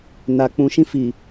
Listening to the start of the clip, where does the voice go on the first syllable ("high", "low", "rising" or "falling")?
low